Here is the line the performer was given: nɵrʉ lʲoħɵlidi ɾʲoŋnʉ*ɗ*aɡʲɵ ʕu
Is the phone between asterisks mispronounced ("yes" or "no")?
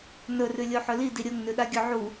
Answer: no